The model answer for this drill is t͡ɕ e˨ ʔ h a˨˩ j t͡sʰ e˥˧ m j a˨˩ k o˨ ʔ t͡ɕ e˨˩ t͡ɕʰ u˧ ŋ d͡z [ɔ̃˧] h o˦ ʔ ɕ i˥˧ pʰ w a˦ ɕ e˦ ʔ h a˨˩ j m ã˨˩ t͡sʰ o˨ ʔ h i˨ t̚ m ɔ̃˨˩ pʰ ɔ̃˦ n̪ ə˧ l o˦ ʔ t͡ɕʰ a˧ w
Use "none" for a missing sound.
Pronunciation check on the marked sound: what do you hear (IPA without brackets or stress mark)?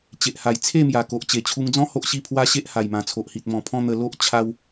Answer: ɔ̃˦